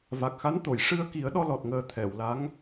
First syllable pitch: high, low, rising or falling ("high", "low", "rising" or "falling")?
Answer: low